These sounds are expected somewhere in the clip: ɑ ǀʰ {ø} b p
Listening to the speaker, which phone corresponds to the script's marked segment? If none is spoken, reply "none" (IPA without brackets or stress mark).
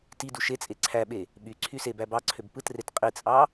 ø